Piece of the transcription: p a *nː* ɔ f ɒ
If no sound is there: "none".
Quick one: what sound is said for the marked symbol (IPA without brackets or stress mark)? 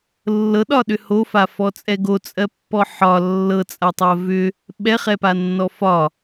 nː